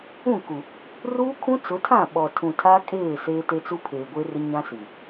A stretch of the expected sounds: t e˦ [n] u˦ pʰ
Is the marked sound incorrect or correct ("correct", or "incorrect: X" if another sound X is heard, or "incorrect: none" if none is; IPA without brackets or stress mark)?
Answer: incorrect: t͡s